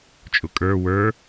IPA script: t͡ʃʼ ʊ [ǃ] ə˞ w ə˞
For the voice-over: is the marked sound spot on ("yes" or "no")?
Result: no